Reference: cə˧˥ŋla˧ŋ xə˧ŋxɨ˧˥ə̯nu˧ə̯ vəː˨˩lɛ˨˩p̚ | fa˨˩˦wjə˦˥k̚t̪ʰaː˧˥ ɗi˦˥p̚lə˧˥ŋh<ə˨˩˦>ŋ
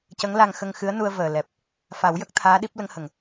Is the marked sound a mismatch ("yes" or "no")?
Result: yes